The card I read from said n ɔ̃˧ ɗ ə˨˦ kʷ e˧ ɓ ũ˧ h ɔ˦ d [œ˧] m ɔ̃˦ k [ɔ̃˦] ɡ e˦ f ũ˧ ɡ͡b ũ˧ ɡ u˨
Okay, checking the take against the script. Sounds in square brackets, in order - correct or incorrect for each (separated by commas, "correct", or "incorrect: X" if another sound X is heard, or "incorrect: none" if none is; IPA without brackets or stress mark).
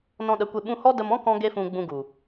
incorrect: ə˧, correct